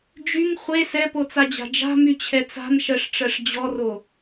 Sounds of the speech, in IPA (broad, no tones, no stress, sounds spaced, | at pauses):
d͡ʒ y ŋ χʷ e s ɛ p o t͡s a d͡ʑ a̤ d͡ʒ a̤ m y t͡ɕʰ ɛ t͡s a̤ n ʃ ɜ ʂ ʈ͡ʂ ɜ ʂ d͡ʑ ɔ r o